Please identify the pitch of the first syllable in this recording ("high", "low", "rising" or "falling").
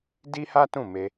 high